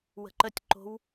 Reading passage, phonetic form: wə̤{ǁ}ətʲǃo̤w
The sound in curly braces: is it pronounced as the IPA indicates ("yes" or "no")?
no